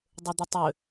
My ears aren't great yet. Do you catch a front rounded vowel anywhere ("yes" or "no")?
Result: yes